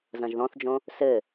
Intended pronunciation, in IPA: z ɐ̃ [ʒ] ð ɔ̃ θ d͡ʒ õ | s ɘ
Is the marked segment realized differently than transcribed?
no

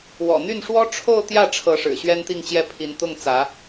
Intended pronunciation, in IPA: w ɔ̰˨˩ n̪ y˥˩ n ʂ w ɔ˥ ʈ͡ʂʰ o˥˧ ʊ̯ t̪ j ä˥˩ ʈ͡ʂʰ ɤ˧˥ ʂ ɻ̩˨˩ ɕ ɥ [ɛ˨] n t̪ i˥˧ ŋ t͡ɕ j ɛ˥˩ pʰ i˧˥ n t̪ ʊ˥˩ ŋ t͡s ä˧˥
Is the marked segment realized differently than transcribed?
yes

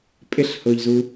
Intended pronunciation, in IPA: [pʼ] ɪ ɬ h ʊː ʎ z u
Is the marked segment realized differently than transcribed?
no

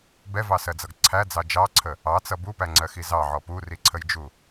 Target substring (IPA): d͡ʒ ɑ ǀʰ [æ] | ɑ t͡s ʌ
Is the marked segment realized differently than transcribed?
yes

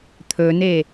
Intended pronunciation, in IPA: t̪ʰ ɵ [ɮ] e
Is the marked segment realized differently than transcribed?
yes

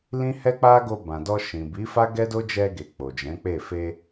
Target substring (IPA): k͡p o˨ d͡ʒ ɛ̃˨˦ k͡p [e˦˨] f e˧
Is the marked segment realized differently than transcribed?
no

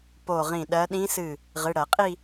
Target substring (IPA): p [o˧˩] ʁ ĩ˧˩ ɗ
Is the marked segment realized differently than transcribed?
no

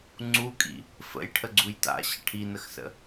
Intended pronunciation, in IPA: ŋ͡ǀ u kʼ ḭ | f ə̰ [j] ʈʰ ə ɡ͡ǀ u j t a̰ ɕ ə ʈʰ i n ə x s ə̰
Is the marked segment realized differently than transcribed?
no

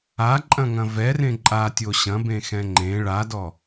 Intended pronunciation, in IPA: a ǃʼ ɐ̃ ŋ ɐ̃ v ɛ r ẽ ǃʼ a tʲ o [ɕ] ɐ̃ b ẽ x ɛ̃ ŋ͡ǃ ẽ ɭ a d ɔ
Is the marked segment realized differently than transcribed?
no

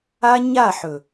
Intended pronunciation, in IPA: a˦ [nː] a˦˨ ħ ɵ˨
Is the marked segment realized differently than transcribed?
yes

